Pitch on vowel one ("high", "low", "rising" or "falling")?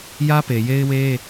high